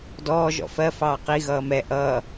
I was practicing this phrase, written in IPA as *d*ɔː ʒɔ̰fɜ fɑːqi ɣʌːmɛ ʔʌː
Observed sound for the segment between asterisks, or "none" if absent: d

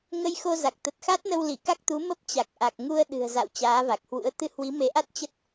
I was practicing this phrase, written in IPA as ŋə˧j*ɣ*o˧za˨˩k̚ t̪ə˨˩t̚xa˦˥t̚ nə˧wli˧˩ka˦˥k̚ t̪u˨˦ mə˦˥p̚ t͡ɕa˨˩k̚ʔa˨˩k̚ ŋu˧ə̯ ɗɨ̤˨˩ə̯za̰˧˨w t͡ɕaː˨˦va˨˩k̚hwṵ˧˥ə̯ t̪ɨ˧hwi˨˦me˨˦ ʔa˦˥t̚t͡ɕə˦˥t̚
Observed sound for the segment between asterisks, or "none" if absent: x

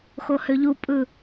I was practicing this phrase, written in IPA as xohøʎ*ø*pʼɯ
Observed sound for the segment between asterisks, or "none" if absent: u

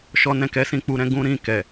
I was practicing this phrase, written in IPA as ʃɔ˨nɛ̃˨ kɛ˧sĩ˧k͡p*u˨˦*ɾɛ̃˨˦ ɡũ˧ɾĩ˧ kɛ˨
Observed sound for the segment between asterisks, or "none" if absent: u˨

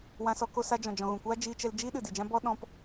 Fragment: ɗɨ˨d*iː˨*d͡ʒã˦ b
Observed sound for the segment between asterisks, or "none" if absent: i˨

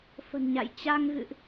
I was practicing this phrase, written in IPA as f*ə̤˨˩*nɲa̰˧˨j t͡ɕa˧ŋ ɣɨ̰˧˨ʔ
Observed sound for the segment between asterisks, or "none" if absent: ə̤˨˩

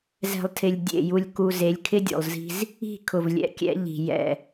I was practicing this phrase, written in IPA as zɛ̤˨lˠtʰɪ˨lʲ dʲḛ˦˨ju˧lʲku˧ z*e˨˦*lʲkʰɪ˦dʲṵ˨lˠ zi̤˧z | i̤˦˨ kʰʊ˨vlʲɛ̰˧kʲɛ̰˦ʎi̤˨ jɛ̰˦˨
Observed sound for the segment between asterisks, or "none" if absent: e˨˦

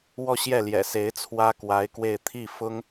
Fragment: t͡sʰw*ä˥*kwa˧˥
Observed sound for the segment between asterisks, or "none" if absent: ä˥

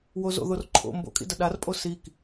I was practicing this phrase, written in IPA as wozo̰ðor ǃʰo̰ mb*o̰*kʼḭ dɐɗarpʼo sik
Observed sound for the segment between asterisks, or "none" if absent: o̰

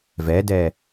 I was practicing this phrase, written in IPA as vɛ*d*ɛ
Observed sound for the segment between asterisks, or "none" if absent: d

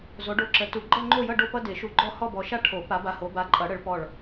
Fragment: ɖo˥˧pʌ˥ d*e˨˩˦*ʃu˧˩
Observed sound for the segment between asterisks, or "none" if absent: e˨˩˦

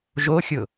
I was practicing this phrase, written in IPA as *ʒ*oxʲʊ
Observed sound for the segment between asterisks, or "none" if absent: ʒ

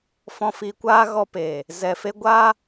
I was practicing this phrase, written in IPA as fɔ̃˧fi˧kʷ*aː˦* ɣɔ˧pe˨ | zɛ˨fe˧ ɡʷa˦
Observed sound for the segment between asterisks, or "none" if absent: aː˦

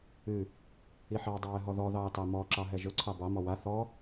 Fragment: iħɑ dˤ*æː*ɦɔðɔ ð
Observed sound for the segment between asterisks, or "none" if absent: ɛː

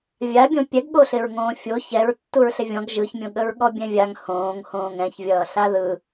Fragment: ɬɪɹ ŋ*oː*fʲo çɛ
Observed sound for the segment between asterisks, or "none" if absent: õː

